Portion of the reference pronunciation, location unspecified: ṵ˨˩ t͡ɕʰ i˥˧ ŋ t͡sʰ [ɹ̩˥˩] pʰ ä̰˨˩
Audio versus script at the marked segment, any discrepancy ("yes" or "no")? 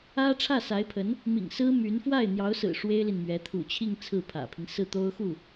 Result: no